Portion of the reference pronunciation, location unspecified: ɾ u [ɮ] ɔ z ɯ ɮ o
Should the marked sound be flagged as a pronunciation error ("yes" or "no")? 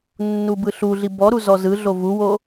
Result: yes